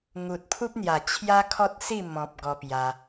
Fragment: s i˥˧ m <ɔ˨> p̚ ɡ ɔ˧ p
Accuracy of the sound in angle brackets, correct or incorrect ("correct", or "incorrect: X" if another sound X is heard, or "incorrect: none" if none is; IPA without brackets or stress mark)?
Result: incorrect: ɔ̃˨